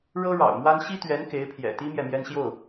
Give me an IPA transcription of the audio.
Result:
ɻ ɤ˥ ɻ ɑ̰˨˩ ʊ̯ m w a˥ n ɕ i˥ t̪ ɥ ɛ˧˥ n k e˧˥ ɪ̯ pʰ j ɛ̰˨˩ t̪ i˥ m j ɛ˨ m j ɛ˥ n ɕ j o˥˩ ʊ̯

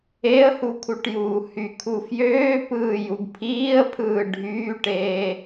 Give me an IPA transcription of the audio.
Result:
e ə̯ h u kʰ u ʈ j uː h y kʰ u f j øː p ɯː j u ɡ pʰ iː ə̯ pʰ ɯː ɖʱ yː ʈ eː

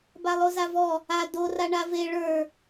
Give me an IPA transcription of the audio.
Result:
b a lˠ o z a v ɔ | a d o r a ɳ a v e ɭ ə˞

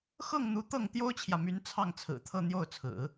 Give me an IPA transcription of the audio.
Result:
x ɤ˥˩ ŋ n̪ u˧˥ t̪ ɤ˥˩ ŋ t̪ j o˥ ʊ̯ t͡ɕʰ j ä˨ m y˧˥ n t͡sʰ ɑ˥˩ ŋ t͡sʰ ɹ̩˨˩ t̪ʰ ɤ˥˧ n̪ j o˥˩ ʊ̯ t͡sʰ ɹ̩˨˩˦

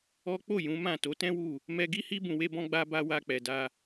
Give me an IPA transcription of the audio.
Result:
ɔ˦ k͡p o˦˨ j ũ˨˦ m ã˦˨ t o˨˦ t ɛ̃˦ w u˦˨ | m ɛ˧ ɡ i˦ h i˦ b ũ˧ w e˦ b ɔ̃˦ ɡ͡b a˧ b a˧ w a˧ k͡p ɛ˨ d a˧

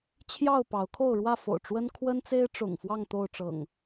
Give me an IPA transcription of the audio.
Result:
t͡ɕʰ j ɑ˥˨ ʊ̯ p ɑ˨˦ ʊ̯ kʰ o˥˨ ʊ̯ ɻ w ä˥˨ f o̰˨˩ ʊ̯ ʈ͡ʂ w ə˦ n kʰ w ə˦ n t͡s e˦ ɪ̯ ʈ͡ʂ ʊ̰˨˩ ŋ f w ɑ˥˨ ŋ t̪ o˥˨ ʊ̯ ʈ͡ʂ ɤ̰˨˩ ŋ

